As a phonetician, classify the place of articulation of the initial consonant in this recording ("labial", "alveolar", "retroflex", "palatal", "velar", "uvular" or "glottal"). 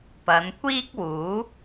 labial